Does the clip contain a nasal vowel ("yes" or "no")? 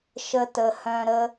yes